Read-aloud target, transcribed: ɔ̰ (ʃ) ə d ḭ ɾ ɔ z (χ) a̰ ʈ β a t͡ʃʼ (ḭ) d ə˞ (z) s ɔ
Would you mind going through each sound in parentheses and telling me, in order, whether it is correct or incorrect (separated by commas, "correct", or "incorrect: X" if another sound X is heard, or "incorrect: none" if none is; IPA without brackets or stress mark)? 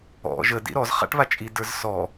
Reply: incorrect: ʒ, correct, incorrect: i, correct